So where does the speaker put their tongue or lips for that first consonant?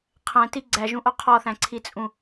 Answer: uvula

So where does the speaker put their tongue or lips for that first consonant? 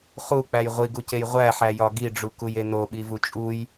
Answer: uvula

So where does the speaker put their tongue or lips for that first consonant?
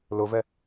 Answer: tongue tip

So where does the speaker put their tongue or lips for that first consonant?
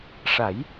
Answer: retroflex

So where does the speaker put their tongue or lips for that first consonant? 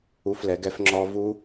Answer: lips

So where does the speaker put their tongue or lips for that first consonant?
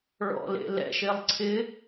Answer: retroflex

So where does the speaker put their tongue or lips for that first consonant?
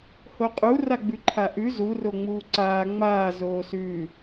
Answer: throat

